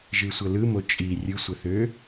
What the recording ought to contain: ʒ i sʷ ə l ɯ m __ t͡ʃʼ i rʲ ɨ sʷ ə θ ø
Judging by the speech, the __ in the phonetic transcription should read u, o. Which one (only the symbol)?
o